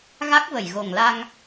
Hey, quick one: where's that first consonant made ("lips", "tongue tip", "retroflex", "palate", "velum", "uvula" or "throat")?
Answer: velum